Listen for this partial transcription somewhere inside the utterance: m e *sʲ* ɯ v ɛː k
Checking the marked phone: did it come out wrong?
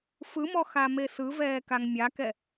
yes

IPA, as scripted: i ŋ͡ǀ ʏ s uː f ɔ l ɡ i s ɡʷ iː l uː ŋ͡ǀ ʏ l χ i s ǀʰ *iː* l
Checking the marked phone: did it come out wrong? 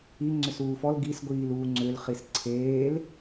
yes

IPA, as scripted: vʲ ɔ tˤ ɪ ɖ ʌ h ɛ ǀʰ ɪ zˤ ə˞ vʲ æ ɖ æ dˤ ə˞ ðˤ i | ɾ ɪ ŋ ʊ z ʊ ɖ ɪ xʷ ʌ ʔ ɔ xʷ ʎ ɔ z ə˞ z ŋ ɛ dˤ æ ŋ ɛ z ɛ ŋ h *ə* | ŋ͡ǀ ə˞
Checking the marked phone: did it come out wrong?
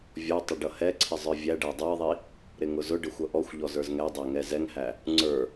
yes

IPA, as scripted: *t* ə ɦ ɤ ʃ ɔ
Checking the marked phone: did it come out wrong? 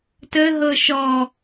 no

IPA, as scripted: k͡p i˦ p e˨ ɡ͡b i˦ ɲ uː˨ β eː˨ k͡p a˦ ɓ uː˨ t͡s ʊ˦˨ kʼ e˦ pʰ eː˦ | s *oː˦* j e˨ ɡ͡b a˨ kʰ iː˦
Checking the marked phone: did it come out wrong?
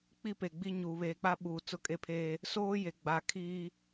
no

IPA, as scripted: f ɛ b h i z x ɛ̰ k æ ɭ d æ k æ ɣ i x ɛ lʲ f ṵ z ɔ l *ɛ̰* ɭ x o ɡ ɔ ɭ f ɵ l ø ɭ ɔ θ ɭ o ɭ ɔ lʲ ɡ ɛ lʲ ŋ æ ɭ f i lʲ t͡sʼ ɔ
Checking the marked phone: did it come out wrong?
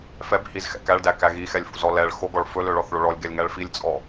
yes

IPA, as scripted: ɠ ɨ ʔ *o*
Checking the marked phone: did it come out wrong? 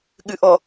yes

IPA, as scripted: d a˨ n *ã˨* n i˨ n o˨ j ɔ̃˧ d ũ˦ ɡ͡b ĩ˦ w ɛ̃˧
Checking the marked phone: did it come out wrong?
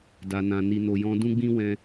no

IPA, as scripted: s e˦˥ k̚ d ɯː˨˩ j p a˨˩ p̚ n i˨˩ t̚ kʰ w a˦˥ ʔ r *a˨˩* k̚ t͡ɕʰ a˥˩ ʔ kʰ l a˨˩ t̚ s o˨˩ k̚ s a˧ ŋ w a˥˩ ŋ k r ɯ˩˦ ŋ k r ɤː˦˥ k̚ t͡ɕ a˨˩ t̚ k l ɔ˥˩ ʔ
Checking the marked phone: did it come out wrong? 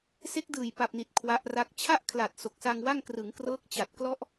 yes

